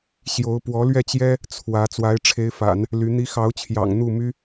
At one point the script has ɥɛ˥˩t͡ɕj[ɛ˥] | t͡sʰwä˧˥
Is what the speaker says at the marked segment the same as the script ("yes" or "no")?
yes